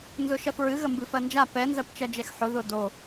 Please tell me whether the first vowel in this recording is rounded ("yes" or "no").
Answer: yes